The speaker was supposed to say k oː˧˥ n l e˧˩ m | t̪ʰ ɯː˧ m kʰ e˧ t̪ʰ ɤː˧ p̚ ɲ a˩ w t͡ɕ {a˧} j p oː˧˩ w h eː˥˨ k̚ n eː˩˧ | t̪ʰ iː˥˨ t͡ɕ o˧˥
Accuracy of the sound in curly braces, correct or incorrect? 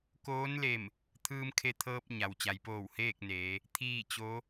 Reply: incorrect